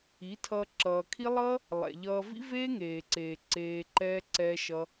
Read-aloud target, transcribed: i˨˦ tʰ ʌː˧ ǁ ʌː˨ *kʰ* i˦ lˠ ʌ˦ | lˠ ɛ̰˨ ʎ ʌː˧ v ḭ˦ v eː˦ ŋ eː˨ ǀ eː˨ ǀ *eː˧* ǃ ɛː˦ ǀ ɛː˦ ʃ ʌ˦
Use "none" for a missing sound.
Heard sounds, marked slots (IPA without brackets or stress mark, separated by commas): kʰ, eː˧